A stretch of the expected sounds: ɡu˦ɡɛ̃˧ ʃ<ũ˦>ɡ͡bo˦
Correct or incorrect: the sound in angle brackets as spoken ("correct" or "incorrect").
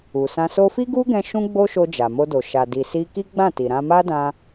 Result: correct